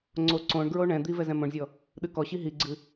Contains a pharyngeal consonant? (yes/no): no